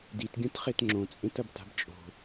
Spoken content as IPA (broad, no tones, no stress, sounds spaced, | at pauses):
d i t ɡʲ ũ t χ e t ŋ͡ǁ õ t͡sʼ ẽ t ɐ b t a̤ b t͡ʃʼ o̤